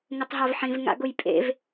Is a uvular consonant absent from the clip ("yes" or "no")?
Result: yes